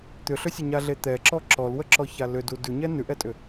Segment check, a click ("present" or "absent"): present